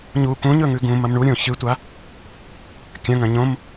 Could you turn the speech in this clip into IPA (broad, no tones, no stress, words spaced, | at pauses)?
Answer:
ɲu kũɲɵŋʉ ɡũmɐm ɳuɾʲõ çɨtʷa | kʲɐ̃ŋɐ̃ ɲõm